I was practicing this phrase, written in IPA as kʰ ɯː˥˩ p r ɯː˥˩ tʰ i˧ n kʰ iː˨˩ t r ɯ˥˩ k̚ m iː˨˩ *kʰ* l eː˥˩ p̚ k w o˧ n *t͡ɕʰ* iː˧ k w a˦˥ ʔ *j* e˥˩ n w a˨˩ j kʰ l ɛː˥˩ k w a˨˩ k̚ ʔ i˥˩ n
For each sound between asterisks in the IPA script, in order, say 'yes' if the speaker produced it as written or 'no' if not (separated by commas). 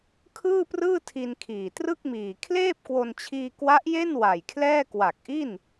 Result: yes, yes, yes